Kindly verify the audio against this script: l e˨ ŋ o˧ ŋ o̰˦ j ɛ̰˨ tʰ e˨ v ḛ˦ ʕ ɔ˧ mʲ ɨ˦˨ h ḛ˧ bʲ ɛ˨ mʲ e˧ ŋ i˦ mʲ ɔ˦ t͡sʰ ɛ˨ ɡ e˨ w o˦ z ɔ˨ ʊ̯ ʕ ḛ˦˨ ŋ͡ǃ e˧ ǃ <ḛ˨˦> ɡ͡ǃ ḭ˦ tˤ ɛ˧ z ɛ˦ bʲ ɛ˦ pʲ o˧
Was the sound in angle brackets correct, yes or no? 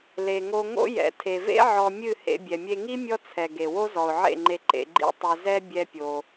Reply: no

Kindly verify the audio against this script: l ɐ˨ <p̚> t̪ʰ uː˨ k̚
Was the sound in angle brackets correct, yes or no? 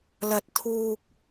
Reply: no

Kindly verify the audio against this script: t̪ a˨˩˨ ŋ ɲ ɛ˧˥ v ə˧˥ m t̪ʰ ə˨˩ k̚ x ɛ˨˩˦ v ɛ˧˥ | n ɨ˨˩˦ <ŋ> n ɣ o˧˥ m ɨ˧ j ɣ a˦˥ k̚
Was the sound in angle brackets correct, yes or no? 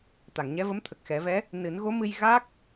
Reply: no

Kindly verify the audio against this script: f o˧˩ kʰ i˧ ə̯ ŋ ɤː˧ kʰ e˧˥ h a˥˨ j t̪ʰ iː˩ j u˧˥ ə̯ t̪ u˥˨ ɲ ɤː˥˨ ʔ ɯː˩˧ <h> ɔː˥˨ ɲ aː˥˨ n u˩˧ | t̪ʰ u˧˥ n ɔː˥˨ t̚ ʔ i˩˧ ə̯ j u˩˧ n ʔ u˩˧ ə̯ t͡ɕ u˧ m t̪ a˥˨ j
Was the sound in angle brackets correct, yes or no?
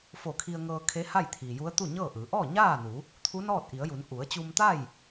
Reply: no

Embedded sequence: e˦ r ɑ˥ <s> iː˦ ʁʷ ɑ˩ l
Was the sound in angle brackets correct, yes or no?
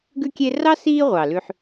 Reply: yes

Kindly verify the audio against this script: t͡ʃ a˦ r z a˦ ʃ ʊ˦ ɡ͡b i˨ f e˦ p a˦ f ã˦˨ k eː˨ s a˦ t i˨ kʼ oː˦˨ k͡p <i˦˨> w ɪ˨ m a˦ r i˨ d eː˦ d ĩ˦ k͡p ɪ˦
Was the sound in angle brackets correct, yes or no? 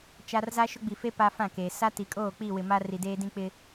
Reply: yes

